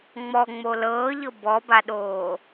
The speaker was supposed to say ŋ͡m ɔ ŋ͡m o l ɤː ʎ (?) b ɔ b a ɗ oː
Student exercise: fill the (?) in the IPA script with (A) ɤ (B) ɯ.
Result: A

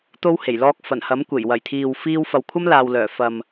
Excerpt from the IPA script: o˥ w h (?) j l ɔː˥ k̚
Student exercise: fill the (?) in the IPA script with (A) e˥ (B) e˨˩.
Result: B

